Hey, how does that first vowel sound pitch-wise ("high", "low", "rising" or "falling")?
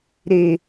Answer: low